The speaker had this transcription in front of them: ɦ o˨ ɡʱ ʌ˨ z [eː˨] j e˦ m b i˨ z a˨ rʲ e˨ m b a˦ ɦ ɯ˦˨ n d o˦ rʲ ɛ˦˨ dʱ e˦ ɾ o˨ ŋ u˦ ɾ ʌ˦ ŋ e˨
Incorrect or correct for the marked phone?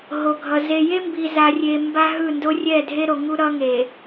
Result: incorrect: e˨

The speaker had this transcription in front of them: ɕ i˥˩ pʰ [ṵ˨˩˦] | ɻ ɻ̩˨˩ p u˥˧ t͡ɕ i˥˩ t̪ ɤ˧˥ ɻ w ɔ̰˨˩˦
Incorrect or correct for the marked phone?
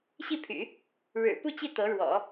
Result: incorrect: y̰˨˩˦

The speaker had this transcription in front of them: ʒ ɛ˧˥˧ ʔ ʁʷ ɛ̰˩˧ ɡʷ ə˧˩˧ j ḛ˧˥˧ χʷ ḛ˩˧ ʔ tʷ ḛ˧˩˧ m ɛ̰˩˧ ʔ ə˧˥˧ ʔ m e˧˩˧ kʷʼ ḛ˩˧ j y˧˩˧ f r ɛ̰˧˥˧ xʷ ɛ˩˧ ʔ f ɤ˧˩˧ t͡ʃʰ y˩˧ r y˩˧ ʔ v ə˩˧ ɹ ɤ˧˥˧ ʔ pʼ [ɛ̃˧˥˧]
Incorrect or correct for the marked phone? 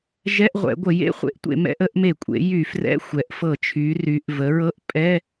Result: incorrect: ɛ˧˥˧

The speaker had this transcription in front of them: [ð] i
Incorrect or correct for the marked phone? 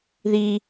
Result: correct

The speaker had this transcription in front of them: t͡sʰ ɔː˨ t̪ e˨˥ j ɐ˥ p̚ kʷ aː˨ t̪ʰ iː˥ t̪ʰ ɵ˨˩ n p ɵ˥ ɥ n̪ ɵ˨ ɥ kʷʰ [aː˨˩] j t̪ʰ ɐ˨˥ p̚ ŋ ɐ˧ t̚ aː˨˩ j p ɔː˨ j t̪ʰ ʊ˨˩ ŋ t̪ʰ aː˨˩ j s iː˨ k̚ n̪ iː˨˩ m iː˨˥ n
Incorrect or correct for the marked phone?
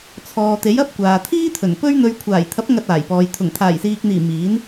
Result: correct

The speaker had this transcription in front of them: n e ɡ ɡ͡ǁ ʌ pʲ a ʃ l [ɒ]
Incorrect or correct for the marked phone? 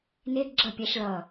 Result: incorrect: ʌ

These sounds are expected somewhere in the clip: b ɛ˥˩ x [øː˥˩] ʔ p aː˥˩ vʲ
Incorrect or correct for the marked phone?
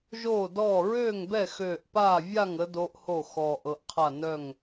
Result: incorrect: øː˧˩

